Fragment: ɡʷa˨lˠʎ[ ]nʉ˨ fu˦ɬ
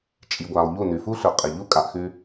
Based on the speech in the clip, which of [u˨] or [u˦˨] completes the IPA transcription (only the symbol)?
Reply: u˦˨